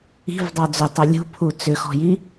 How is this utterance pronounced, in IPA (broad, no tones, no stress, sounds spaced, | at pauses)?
i̤ v dˤ ɑ d͡z ʏ tˤ œ lʲ ṳ pʰ u t͡s ʏ x ɔ̤ j i